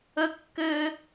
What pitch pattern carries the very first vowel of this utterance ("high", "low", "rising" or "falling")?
high